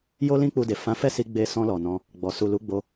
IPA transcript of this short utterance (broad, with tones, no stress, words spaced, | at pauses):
jo˦lĩ˦k͡pu˧de˨ fã˨˦fɛ˦˨si˧ ɡ͡be˧sɔ̃˧lɔ˨ nɔ̃˧ | ɡ͡bɔ˨ su˨lu˨˦ɡ͡bo˧